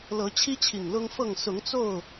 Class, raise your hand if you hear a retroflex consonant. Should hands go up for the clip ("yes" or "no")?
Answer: no